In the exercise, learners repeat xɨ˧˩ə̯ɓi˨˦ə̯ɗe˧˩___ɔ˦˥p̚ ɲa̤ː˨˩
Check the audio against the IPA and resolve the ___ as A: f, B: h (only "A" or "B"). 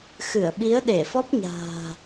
A